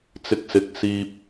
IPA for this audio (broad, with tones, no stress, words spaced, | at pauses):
t͡sɪ˧k̚sɪ˨˥k̚ siː˧p̚